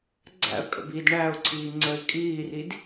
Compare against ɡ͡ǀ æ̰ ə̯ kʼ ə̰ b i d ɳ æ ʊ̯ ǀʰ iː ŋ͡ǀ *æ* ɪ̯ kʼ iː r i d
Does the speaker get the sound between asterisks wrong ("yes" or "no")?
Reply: yes